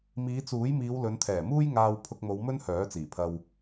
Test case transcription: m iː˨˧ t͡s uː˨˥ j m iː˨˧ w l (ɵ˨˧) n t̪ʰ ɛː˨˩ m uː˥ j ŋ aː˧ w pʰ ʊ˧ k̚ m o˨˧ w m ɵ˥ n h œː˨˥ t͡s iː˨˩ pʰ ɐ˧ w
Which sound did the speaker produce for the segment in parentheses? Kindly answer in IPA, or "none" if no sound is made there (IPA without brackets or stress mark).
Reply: ɵ˨˧